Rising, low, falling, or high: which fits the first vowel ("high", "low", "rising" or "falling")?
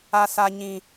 high